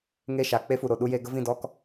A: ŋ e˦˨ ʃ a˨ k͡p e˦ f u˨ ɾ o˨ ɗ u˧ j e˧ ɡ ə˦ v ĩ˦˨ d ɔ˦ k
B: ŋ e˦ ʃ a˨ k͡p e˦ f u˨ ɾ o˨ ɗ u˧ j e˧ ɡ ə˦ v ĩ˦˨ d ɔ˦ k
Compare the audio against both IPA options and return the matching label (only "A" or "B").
A